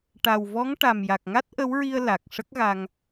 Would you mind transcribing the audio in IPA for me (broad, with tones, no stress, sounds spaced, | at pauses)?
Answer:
ʈ a˨˩ w v ɔ˧˥ ŋ ʈ a˨˩ m j a˨˩ k̚ ŋ a˦˥ t̚ ʔ ə˧˥ w ɹ i˧ ə̯ l a˨˩ k̚ ʂ ə˦˥ k̚ ɣ a˧ ŋ